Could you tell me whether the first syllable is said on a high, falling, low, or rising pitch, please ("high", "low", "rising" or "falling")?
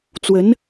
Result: rising